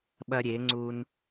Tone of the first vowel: high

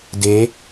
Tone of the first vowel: rising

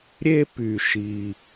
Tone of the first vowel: high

